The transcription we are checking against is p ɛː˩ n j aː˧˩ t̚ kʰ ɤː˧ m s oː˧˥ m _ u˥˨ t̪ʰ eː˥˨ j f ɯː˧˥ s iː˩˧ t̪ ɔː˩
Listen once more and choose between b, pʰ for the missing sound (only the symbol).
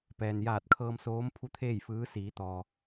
pʰ